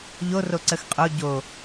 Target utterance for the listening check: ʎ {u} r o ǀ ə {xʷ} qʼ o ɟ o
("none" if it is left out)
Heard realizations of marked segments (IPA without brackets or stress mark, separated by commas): o, x